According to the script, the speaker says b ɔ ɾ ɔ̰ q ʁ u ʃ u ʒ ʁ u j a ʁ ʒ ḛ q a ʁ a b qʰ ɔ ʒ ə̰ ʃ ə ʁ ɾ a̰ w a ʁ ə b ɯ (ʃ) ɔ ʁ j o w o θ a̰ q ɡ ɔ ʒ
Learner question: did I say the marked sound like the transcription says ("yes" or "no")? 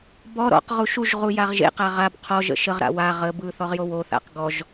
no